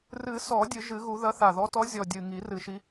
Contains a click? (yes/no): no